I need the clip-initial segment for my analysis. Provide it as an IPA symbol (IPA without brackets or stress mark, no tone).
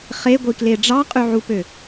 χ